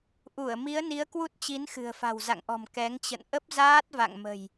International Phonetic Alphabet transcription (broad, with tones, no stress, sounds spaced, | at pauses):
ʔ u˧˩ ə̯ m i˨˦ ə̯ n i˨˦ ə̯ k w u˦˥ t̚ t͡ɕ i˨˦ n x ɨ̤˨˩ ə̯ f a̤˨˩ w z a̰˧˨ ŋ ʔ ɔ̤˨˩ m k ɛ˨˦ ŋ t͡ɕ ə̰˧˨ n ʔ ə˦˥ p̚ z aː˦˥ t̚ v a̰˧˨ ŋ m ə̤˨˩ j